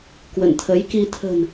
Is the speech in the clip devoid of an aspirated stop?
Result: no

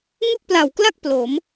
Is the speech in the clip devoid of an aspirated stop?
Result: yes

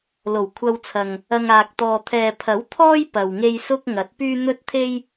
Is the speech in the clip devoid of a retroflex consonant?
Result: yes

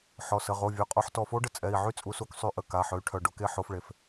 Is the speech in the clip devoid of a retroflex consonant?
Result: no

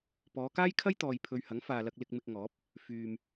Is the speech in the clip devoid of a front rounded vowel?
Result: no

